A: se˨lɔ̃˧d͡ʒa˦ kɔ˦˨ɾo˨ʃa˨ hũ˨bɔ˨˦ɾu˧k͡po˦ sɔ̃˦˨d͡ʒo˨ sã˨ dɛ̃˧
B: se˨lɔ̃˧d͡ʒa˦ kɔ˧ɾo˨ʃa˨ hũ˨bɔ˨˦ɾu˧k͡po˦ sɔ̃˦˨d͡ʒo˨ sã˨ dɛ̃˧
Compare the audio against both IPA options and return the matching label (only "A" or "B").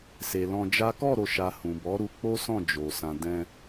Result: A